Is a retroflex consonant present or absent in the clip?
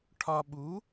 present